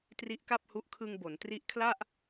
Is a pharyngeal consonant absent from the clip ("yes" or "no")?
yes